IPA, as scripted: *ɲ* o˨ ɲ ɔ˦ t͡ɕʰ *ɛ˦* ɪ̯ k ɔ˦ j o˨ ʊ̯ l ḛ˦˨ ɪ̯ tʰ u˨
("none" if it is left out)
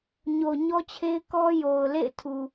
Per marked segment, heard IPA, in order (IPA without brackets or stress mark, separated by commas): ɲ, e˦